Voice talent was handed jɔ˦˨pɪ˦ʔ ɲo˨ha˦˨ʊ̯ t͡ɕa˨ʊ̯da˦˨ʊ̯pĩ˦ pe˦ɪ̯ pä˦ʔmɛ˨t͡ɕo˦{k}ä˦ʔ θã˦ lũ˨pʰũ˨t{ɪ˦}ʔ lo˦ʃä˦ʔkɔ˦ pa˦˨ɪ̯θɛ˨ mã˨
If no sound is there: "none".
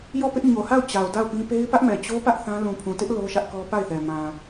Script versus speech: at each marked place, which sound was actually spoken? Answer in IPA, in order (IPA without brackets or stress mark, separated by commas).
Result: p, ɪ˦